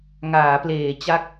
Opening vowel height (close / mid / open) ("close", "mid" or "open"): open